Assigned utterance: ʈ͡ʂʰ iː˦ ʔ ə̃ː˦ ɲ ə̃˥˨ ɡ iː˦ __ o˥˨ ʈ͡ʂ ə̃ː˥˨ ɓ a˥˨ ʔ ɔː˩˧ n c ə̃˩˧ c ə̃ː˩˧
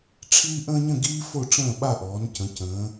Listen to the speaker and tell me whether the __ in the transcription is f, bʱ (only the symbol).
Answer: f